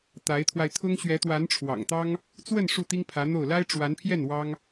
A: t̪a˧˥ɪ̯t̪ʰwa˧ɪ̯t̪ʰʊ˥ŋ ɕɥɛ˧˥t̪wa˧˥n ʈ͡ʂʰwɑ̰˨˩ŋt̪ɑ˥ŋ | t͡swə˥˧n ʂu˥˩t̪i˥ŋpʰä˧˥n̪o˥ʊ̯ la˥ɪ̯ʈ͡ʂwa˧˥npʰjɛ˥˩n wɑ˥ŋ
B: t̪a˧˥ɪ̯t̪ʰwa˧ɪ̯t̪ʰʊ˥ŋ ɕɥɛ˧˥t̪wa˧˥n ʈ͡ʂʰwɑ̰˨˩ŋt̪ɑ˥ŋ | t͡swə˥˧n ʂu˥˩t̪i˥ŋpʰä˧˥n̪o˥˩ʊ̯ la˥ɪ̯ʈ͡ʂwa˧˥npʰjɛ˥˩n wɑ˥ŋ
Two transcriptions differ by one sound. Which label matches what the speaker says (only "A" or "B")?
B